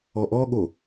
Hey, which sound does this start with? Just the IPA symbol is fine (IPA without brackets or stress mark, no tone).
ɔ